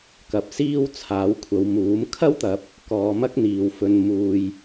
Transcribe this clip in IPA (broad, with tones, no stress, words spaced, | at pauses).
kɐ˨p̚ siː˥wt͡sʰaː˨˥wkʷʰɐ˨˧wmuː˨˥m kʰɐ˥wt̪ɐ˨˥p̚ | kɔː˨˧mɐ˥k̚n̪iː˨wfɵ˧n muː˧j